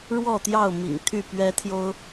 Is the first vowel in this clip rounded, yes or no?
yes